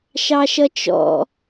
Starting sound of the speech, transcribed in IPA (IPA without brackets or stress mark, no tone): ʃ